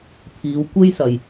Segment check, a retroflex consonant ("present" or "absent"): absent